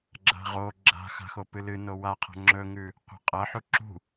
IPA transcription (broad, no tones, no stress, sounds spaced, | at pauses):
ɡ͡ǁ a̤ ʁ o ɡ͡ǁ a̤ x a̤ x o p ɨ l ɨ n o w a qʰ a̤ ŋ͡ǁ ɵ ŋ ʉ | qʷ a̤ qʼ ɐ ħ u ǁ ṳ